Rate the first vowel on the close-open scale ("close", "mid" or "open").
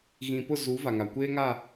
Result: close